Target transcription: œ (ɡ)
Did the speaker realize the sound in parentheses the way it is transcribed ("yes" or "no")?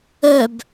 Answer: no